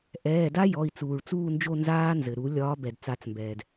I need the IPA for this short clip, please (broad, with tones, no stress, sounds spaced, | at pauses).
ʔ ɛː˩˧˩ d a˦˥ j ɔ˩˧˩ i̯ t͡s uː˩ ɭ t͡s uː˦˨ n d͡ʒ o˦˨ n z aː˦˥ n z ɘ˩ ɾ u˨˩˦ lʲ ɒː˨˦ b ɛ˩ d t͡s a˨˩˦ t͡s m b ɛː˩ d